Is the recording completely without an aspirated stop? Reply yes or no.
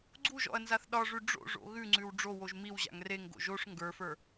yes